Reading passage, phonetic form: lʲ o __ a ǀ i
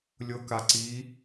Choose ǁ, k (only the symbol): k